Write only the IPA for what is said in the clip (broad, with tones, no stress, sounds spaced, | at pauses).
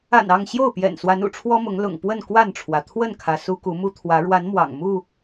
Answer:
a̰˨˩ n ɑ˥˨ ŋ ɕ j o˥˨ ʊ̯ p j ɛ̰˨˩ n s w a˨˦ n ṵ˨˩ ʈ͡ʂʰ w ɔ˦ m ʊ˨˦ ŋ l ʊ̰˨˩ ŋ p w ə˥˨ n k w a˥˨ n ʈ͡ʂʰ w ä˩ t̪ʰ w ə˥˨ n kʰ ä˩ s u˦ k u˨˦ m u˦ t̪ʰ w ä˨˦ ɻ w a˨˦ n m w ɑ̰˨˩ ŋ m u˥˨